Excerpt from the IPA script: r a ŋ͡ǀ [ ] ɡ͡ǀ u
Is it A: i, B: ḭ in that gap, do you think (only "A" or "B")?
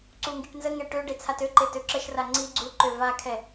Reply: A